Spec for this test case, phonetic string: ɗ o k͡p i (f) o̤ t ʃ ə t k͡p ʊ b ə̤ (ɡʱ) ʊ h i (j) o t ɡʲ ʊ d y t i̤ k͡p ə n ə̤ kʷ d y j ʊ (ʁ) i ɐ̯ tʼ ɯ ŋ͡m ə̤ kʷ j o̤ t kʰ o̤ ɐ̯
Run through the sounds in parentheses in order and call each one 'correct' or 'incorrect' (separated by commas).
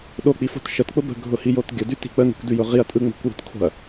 correct, correct, correct, correct